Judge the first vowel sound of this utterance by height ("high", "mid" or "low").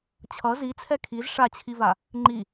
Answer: mid